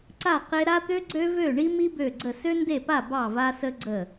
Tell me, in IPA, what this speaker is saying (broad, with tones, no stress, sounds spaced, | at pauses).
ǀ a˥˨ q e˥ ɾ a˥ t̪ ø˥ ɡ͡ǀ ø˥ v ø˥˨ ɳ i˥ m i˥ b ø˥˨ ɡ͡ǀ ə˥˨ s ø˥ n d e˥˨ p a˥˨ b ɑ˥˨ v a˥ s ə˥ ɡ͡ǀ ə˥˨